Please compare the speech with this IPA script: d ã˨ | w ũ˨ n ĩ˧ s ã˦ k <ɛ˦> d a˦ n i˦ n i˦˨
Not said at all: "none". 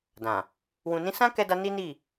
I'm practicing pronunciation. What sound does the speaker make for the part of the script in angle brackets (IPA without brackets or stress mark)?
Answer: ɛ˦